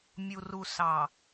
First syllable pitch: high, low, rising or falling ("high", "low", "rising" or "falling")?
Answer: low